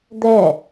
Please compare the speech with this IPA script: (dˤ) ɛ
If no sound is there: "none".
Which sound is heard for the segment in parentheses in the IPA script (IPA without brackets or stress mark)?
d̪